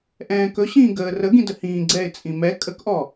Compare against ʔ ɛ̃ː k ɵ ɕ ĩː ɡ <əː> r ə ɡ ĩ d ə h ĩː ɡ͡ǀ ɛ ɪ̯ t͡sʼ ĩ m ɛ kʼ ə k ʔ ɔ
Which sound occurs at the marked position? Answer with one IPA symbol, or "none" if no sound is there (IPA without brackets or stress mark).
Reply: əː